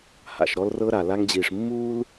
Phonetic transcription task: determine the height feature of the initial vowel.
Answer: low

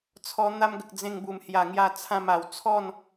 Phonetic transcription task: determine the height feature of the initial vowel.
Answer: mid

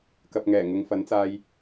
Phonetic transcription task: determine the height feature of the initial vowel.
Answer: low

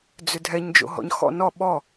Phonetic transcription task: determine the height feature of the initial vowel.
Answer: high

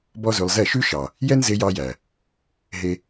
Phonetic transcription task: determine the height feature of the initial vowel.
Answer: mid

